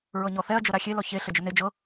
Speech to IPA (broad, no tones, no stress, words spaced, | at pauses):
ɹɤɲɔθɛɐ̯ d͡ʒɤɾaxʲe lɔçe ɬəd͡ʒəne d͡ʒɤ